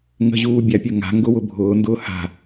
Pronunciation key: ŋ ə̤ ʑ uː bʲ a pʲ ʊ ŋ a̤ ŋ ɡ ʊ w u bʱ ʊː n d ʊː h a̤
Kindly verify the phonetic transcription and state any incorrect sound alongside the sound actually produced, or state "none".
u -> ʊ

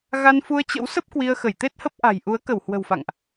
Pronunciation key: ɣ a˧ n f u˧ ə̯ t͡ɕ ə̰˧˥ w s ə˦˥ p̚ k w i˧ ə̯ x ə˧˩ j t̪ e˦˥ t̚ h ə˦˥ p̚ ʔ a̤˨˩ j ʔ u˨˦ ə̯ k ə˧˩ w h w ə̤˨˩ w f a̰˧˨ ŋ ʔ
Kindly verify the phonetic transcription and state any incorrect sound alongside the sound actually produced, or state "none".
none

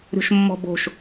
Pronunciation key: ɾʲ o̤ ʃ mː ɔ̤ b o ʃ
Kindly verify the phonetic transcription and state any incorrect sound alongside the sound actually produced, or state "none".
o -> o̤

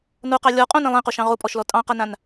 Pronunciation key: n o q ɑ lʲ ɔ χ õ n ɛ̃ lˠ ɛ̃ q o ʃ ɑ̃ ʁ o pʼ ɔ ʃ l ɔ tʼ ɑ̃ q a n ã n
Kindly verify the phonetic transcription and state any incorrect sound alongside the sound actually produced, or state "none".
χ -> qʼ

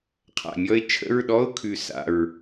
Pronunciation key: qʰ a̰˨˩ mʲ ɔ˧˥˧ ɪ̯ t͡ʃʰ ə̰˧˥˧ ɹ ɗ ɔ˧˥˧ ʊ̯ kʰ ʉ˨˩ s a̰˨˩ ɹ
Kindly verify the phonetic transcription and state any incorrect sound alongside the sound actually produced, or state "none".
none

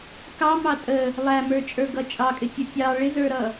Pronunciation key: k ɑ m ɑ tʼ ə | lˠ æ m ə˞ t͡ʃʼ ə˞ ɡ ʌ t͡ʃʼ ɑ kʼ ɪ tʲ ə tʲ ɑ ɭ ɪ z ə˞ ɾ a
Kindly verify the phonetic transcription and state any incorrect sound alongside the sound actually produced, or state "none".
a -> ʌ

